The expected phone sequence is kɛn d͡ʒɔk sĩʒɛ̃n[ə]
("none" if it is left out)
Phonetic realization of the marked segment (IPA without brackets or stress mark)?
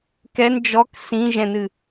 ɨ